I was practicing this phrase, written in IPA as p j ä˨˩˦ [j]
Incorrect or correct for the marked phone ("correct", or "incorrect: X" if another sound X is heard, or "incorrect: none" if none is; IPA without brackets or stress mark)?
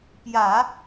incorrect: none